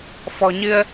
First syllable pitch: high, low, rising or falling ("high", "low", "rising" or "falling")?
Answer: low